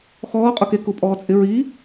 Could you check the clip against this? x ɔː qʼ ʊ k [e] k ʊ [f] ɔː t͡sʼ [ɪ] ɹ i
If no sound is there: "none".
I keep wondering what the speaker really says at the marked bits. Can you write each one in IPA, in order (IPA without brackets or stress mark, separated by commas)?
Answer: e, pʼ, ɪ